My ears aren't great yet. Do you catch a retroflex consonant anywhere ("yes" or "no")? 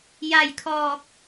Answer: no